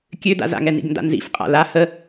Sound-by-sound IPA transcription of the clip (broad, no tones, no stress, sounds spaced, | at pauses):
kʲ ø d a̰ z a̰ ŋ ɛ n ḭ ɡ n d a̰ n z ḭ f qʼ a̰ l a h ə